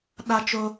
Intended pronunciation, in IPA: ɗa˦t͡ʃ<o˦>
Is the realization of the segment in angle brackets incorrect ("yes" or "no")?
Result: no